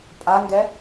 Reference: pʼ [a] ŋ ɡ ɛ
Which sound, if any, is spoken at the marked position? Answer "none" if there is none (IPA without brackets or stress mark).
a